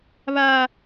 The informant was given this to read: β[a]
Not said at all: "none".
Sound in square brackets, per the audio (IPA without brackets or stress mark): a